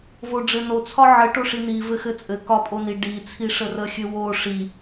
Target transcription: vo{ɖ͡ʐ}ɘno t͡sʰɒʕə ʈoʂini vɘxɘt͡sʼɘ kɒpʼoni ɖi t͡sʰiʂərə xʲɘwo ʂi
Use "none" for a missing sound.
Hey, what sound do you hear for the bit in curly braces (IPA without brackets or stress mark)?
ɖ͡ʐ